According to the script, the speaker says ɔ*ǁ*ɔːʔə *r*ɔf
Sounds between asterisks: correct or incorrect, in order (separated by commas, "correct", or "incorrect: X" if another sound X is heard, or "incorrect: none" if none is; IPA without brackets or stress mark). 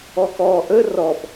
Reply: incorrect: k, correct